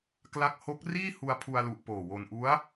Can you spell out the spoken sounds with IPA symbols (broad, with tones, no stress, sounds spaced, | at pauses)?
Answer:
k l a˦˥ k̚ h o˦˥ k̚ r iː˥˩ h u˧ a̯ pʰ u˧ a̯ l u˨˩ ʔ p oː˨˩ w o˧ n ʔ u˦˥ a̯